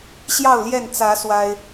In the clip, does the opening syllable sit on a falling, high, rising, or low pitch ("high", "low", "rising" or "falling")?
falling